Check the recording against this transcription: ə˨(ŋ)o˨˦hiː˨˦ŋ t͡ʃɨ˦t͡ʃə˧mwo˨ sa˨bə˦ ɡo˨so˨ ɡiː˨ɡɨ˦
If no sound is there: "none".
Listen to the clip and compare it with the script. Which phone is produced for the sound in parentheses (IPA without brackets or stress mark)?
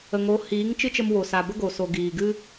ŋ